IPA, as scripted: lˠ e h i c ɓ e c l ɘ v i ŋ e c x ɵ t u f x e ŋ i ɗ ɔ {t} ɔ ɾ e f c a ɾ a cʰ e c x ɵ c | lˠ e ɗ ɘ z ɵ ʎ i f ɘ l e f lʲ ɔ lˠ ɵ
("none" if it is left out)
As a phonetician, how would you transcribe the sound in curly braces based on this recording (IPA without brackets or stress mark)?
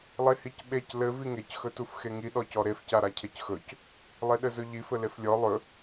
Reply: c